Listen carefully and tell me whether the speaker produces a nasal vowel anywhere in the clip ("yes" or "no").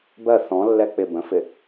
yes